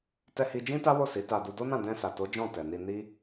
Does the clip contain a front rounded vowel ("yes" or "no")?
no